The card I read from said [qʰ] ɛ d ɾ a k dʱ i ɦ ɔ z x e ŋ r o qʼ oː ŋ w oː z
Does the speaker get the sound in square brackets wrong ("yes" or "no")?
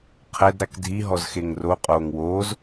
no